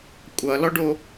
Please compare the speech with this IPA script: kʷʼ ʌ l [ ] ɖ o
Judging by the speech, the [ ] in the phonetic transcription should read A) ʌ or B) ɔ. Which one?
B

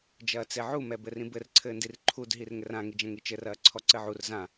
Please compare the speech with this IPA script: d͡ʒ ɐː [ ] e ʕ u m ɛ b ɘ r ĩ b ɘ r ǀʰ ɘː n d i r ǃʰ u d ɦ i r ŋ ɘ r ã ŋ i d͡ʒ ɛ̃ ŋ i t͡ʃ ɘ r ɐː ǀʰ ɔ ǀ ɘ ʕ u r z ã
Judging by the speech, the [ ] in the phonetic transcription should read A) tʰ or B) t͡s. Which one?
B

